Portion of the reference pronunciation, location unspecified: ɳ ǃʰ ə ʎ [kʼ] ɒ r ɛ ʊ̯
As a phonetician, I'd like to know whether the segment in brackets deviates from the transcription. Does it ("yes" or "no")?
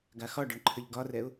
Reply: yes